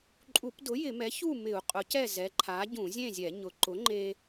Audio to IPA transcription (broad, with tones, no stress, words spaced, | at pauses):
ǃʼu˧˩˧pdʊ˩˥ jɪ˧˩˧mɛ˩˥ çu˥˨mɪ˧˩˧u̯ qʼʊ˩˥cɛ˥˨ zɛ˩˥ǃʰa˩˥ ɟũ˧˩˧zʲẽ˥˨zʲɛ˧˩˧ ɲʊ˩˥ ǃʊ˩˥ŋ͡ǃe˧